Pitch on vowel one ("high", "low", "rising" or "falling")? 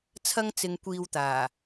high